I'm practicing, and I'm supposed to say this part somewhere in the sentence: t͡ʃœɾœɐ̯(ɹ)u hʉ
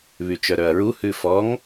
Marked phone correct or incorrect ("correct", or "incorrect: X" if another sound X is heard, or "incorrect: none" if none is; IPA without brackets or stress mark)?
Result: correct